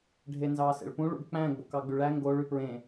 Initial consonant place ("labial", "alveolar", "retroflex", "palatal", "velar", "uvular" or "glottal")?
retroflex